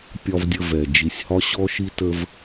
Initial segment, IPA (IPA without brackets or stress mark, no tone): pʲ